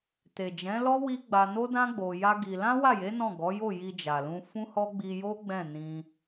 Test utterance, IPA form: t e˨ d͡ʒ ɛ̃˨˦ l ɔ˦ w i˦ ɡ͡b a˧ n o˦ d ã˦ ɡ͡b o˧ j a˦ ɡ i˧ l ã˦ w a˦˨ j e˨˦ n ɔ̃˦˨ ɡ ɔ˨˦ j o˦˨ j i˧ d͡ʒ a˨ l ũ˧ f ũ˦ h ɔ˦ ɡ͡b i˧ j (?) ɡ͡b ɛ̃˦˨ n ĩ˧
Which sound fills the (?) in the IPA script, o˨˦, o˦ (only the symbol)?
o˦